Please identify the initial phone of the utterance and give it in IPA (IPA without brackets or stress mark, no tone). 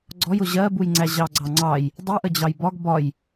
ɡ͡ǀ